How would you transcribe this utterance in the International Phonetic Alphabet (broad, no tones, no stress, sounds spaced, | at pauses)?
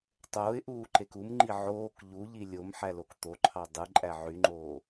tˤ oː ɪ̯ ʔ uː ǃ e k u m ŋ͡ǃ i ʕ oː k ʎ u ʎ i lʲ o m ħ æ l o k t̪ o ǃʰ ɑ dˤ ɯ ǃʼ æ ʕ y ŋ͡ǃ oː